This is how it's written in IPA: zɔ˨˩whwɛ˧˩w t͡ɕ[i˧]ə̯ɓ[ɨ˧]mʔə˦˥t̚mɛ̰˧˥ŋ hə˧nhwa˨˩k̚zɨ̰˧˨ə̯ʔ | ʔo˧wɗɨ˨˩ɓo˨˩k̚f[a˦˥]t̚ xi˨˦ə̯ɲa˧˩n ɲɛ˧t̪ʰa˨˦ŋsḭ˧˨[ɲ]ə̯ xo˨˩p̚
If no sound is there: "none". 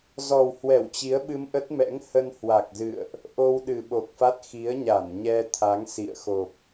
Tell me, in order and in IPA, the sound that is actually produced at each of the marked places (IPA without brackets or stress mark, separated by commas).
i˨˦, ɨ˧, a˦˥, none